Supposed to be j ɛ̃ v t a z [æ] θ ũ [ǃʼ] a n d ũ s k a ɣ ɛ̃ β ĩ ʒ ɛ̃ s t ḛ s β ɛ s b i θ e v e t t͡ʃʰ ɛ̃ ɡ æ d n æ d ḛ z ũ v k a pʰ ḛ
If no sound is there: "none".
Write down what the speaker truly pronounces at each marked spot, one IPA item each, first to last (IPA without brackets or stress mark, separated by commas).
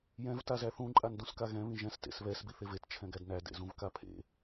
æ, ǃʼ